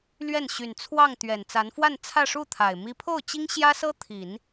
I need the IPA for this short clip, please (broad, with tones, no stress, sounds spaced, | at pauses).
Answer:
l ɥ ɛ˥˩ n ɕ y˨˩ n t͡sʰ w ɑ˥˩ ŋ t̪ ɥ ɛ˨˩ n t͡s a˧˥ n f w a˥˧ n t͡sʰ ä˥˧ ʂ u˥˩ t̪ʰ a˨˩ ɪ̯ m i˥ pʰ o˥˩ ʊ̯ t͡ɕ i˥ ŋ ɕ j ä˥ s ɤ˥ t̪ʰ i˨˩˦ n